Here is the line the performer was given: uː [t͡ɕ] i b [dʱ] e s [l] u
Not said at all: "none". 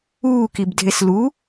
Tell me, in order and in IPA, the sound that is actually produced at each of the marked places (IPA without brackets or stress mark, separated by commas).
k, dʱ, l